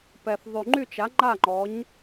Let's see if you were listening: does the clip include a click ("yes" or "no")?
yes